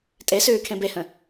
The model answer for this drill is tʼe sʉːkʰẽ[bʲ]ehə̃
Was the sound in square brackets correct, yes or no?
no